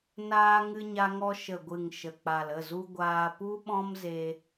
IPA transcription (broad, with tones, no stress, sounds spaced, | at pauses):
n aː˧ ŋ ɨ˧ ɲ a˧ ŋ ɔ˧ ʃ ə˨ ɡʷ ɨ˨ ŋ ʃ ə˨ k͡p a˨ l ə˦˨ z u˧ ɡʷ aː˧ p u˦ ɓ ɔ̃˦ m z e˧